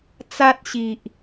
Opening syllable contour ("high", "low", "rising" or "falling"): high